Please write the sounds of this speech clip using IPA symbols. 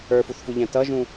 ə˞ f u θ f u ʎ æ̃ t ʌ ʒ ũ

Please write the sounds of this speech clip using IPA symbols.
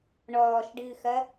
ɳ ɔː ʃ ɖ ɨː x ɐ

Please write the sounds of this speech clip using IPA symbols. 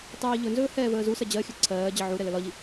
tˤ iː ʎ ɵ n z ɵː h ɛː v əː z u s ɜ d͡ʑ ɜ xʲ ɵ ǀʰ ɜː d͡ʑ ə ʕ u ɾ ɛ l ə l ɒ ʎ i

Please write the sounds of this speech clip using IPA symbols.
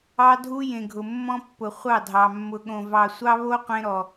ɑ˦ dʱ u˦ j ẽ˨ ɡʱ ʊ˨ mː ɔ̃˦ pː ʊ˨ χʷ ɑ˦˨ dʱ ɑ˨ mː ʊ˨ ɠ õ˨ v ɑ˨ sʷ ɑ˦ β o˦ qʷ ẽ˦ ɾ ɔ˨

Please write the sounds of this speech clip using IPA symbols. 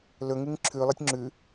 l ɵ ŋ ɨ ŋ ǁʰ ʉ lˠ ɨ tʲ ŋ͡ǁ ʉ

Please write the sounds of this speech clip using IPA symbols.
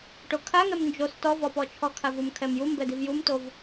ʈ o kʰ a ŋ ɛ m n d͡ʒ o s t ɔ v ɔ p ɔ t͡ʃʰ ɔ kʰ a v u m kʰ ɛ m j u m b ɛ d i v j u m t o v

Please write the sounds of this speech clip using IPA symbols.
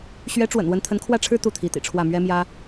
ɕ ɥ ɛ˧˥ ʈ͡ʂ w ə̰˨˩ n w ə˧˥ n t̪ʰ ə˧˥ n kʰ w ä˥˩ ʈ͡ʂʰ ɻ̩˥ t̪ u˥˩ t̪ʰ i˧˥ t̪ ḭ˨˩ ʈ͡ʂʰ w ä˥˩ m ɥ ɛ˥ m j ä˥

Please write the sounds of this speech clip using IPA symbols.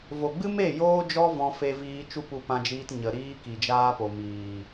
v o˨ ɡ͡b ɨ˦ m e˦˨ j oː˦ d͡ʒ ɔ˦ v ɔ̃˧ f e˧ v iː˧ t͡ʃ u˦ p u˧ p ã˧ d͡ʒ iː˧ t ɲ ə˨ ɾ iː˦ k i˨ d͡ʒ aː˦ p o˨ m iː˨

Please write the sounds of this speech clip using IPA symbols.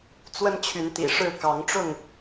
t͡s w ə˦ n t͡ɕʰ y˨˦ n t̪ ḭ˨˩ ʂ ɻ̩˥˨ k ɑ˨˦ ŋ ʈ͡ʂ ʊ˥˨ ŋ

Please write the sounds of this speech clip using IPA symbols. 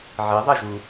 ʕ i ðˤ ɛ ʒ u

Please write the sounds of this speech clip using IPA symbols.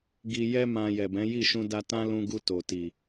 ɡ i˨ j ɛ˧ m ã˨ j ɛ˨ b ɛ̃˨˦ j i˦˨ ʃ ũ˧ d a˧ t ã˦ l ũ˧ ɡ u˧ t o˨ t i˨

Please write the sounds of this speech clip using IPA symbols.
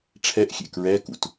ʈ͡ʂʰ ɛ ʔ xʲ ḛ k ɹ ɛ k ṵ t

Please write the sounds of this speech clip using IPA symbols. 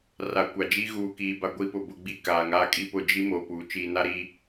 r a˨ kʷ a˨ d͡ʒ i˦ ɣ uː˨ k iː˨ b a˦ ɡʷ i˦ p ʊ˨ b ʊ˦ ɡ͡b i˦ k aː˨ ŋ aː˦ kʼ i˦ p ʊ˦˨ d͡ʒ i˦ m oː˨ p uː˨ t͡ʃ iː˨ n a˦ ɾ i˦

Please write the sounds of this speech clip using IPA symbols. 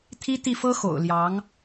t̪ʰ i˥ t̪ i˥˩ f ɤ˥ x o̰˨˩ ʊ̯ l j ɑ˧˥ ŋ

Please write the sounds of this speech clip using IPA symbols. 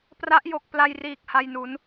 p r a˦˥ ʔ j o˨˩ k̚ p l a˧ j r iː˨˩ k̚ h a˧ j n u˩˦ n

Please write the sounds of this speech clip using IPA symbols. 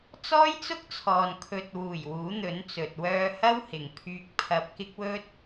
t͡s ɔː˥ j t͡s ʊ˥ k̚ t͡sʰ ɔː˨ n kʰ ɵ˨ t̚ w uː˨˩ j w uː˨˥ n̪ ɵ˨˥ n t͡s ɵ˨ t̚ w œː˧ h ɐ˥ w h ɪ˨ ŋ pʰ yː˧ k̚ pʰ ɐ˧ p̚ k ɪ˥ k̚ w ɵ˥ t̚

